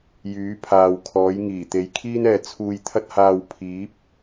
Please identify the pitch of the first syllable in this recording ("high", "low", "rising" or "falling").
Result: rising